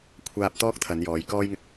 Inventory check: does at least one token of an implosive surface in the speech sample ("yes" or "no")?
no